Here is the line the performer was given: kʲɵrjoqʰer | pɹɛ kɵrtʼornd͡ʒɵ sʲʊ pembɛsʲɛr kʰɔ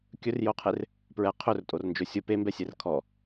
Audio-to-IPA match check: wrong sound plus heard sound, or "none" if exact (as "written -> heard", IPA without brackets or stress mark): k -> qʰ